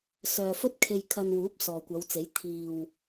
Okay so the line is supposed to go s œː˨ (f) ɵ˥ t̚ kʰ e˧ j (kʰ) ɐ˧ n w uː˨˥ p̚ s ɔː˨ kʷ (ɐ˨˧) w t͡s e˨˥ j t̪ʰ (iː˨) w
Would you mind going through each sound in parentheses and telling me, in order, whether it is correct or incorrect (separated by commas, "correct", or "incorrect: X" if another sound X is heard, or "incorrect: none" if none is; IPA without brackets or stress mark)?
correct, correct, correct, correct